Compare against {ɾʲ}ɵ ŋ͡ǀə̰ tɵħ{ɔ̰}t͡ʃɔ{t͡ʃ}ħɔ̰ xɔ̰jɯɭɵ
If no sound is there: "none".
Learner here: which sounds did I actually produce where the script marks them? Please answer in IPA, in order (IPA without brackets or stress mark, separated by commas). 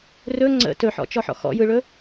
r, ɔ̰, none